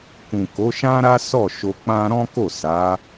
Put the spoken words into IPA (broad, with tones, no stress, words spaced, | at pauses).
kũ˨ ko˨˦ʃã˦ɾa˦ sɔ˦˨ʃo˧ k͡pã˦ ɾɔ̃˦ko˦˨ sa˨˦